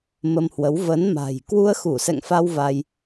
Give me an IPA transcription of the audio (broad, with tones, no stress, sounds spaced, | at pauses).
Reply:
m ə˧ m h w ə˨˦ w v ə˨˦ n m a̤˨˩ j k w u˧ ə̯ x u˧˩ s ɛ̰˧˨ ŋ f a˧ w v a˧ j